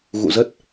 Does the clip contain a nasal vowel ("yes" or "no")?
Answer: no